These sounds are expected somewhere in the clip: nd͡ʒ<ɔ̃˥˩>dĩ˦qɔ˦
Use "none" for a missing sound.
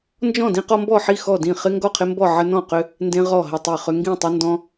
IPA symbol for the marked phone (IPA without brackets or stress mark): ɔ̃˥˩